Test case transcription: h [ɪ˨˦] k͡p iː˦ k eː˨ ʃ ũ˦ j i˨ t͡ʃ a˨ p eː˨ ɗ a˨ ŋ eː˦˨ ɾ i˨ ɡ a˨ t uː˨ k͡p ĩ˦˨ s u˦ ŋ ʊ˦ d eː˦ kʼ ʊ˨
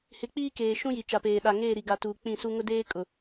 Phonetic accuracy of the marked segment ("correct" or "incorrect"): correct